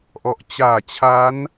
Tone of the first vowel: low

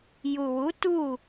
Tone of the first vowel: low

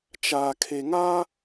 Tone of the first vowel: low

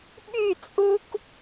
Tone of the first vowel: falling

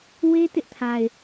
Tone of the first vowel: high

